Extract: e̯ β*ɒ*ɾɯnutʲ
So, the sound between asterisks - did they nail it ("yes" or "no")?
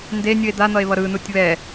no